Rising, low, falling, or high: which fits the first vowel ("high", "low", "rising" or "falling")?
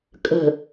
low